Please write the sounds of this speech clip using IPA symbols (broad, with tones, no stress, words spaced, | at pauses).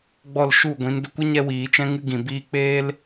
ɡ͡bɔ˦˨lʃu˦˨ɡʷĩ˨˦n də˧kʷɨ˦ ɲɛ˦wiː˨˦ t͡ʃɛ̃˧ŋɨ˧ɡĩ˨ biː˧k͡peː˦l